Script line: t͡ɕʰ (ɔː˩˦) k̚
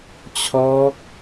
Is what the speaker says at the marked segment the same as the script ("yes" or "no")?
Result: no